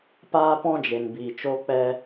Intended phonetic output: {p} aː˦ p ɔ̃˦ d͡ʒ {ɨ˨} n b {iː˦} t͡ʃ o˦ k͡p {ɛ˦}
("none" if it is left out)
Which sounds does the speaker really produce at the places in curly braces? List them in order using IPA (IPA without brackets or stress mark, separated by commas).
p, e˨, iː˨, ɛ˦